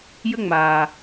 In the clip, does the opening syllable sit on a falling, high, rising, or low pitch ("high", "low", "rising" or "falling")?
high